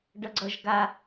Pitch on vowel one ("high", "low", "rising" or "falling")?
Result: high